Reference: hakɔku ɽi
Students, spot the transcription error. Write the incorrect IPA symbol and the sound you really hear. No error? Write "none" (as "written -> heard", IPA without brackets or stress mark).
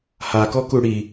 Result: none